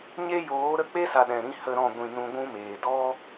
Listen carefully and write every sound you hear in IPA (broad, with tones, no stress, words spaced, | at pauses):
ɲe˦ joː˨˦ɾə˦˨k͡pe˦sa˨ ɗɛ̃˨ɾĩ˦hə˦ɾɔ̃˦˨ ɡʷĩ˨ nũ˧ɡʷũ˦meː˨ dɔ˦